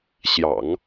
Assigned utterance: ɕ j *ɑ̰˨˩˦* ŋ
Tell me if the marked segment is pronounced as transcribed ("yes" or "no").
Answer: yes